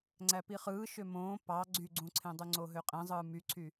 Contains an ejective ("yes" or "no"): yes